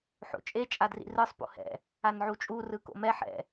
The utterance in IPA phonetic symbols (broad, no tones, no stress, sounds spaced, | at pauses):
ħ o̰ t͡ʃʼ e t͡ʃʼ a d r ḭ r ɯ sˤ p o̰ h ɛ̰ | a n ʕ u t͡ʃʼ u r ɯ k o̰ m ɛ ħ ɛ̰